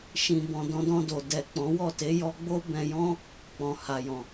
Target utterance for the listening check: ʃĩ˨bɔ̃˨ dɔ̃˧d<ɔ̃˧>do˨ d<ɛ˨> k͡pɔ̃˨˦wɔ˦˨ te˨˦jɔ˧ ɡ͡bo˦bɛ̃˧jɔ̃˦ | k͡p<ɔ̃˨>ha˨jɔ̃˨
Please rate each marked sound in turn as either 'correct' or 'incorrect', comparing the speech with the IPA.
correct, correct, correct

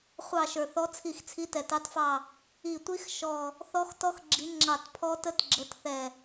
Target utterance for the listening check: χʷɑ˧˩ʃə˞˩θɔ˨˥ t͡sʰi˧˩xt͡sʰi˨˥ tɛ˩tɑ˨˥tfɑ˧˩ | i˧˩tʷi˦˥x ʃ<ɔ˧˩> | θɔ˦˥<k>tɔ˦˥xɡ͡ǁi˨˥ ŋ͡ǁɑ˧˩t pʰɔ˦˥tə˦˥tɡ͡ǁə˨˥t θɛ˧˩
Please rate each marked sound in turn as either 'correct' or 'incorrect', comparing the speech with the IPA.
correct, incorrect

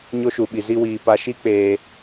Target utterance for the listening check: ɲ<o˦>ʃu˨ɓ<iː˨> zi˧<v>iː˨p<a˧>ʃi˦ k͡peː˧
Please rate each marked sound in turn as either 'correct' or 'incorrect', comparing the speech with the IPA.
correct, incorrect, incorrect, correct

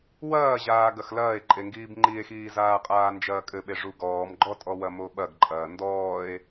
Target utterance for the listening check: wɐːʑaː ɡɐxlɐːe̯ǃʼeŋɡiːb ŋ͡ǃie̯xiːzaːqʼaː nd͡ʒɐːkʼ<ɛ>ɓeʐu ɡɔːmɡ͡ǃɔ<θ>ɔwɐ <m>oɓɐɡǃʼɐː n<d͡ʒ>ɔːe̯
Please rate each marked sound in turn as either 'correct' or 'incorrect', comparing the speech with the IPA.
incorrect, incorrect, correct, incorrect

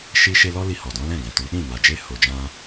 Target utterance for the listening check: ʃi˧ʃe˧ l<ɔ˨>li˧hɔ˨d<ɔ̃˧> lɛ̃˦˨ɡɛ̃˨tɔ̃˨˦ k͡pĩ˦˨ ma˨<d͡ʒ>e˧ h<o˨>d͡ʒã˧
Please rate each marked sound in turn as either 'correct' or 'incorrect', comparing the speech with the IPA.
incorrect, incorrect, correct, correct

